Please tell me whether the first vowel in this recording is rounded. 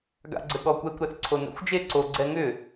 no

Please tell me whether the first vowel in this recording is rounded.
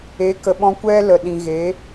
no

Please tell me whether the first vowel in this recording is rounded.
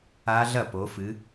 no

